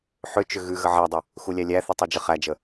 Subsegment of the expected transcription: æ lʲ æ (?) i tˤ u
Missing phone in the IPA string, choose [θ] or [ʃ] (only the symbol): θ